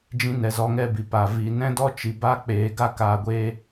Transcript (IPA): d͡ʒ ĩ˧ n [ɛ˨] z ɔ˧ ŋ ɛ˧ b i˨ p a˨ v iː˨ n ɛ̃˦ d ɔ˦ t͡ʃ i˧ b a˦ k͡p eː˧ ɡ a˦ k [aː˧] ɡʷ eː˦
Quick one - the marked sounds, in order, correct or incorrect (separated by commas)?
correct, correct